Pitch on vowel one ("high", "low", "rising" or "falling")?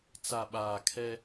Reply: low